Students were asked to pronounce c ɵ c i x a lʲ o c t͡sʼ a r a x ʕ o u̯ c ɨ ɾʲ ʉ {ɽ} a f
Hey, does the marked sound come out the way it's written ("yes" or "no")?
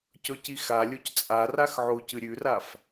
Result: no